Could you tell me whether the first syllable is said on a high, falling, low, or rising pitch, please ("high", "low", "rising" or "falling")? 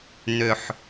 low